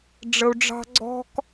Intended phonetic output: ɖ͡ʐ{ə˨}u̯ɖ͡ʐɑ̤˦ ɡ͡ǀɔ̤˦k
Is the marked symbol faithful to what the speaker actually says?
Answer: yes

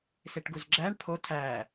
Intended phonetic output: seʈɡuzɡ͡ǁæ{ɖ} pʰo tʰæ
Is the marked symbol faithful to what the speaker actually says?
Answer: no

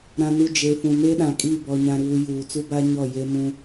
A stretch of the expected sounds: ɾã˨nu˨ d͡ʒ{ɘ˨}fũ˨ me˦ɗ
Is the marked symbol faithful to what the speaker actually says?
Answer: no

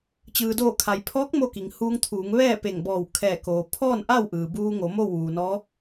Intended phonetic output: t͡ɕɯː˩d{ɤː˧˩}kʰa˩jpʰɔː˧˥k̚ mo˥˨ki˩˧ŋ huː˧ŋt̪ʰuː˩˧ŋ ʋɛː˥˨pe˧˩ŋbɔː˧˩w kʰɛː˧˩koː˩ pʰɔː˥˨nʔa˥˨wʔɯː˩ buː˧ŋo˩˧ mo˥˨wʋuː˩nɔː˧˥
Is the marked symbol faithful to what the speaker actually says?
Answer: no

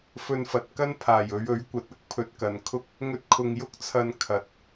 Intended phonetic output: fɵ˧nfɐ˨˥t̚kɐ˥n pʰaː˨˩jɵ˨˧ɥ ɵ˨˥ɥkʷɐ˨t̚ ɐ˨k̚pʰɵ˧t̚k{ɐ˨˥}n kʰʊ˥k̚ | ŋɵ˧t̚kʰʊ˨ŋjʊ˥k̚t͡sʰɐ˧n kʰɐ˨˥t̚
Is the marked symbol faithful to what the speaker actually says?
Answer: no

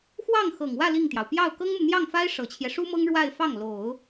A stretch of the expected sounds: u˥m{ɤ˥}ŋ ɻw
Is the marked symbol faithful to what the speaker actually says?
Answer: yes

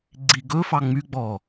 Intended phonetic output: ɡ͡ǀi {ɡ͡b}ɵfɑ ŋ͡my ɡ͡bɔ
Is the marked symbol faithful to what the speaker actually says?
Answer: no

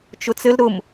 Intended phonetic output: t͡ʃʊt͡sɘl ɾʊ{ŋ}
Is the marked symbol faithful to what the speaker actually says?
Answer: no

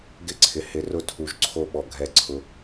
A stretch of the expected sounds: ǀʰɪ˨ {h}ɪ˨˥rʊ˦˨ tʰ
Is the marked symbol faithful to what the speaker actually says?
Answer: yes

